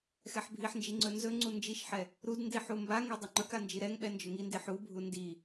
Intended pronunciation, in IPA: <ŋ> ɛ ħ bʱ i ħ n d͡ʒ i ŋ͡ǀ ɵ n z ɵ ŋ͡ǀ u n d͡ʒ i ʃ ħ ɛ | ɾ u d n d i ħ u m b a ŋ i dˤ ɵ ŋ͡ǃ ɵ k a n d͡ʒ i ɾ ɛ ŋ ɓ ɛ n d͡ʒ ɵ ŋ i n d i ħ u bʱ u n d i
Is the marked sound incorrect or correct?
incorrect